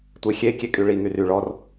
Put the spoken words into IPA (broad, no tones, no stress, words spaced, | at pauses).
tʷexʲe kʲekʼyɭi ŋyry ɭɔr